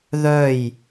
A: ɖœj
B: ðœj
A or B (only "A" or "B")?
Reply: B